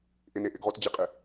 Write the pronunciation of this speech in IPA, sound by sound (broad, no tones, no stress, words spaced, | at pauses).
ʔɪne ʔɪɡʁotd͡ʑɪqʼɪ